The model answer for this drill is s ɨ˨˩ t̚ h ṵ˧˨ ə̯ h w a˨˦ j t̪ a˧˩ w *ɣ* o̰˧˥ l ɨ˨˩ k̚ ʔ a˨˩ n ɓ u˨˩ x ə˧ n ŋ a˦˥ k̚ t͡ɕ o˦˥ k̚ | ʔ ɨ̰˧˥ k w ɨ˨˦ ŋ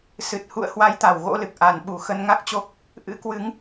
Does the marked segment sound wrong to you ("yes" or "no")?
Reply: no